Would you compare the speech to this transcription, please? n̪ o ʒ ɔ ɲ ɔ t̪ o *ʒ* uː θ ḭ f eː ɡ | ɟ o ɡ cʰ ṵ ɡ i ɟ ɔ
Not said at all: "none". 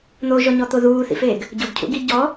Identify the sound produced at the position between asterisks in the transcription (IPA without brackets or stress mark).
ð